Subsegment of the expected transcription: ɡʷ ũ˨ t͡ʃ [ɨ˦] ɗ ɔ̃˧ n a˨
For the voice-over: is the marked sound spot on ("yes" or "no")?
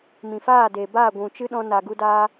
yes